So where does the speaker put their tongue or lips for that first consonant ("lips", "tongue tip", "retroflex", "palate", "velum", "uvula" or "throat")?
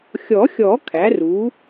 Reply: velum